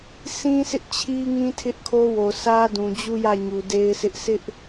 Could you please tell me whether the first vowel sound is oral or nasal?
nasal